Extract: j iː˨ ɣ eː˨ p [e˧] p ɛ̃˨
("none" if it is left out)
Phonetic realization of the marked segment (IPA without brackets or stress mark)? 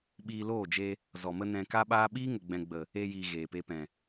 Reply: e˧